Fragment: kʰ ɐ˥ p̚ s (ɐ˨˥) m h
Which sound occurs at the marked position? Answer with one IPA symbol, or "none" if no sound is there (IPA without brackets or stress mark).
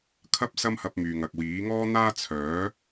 ɐ˥